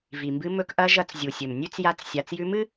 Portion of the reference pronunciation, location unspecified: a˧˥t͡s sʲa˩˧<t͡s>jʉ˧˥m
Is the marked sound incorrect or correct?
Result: correct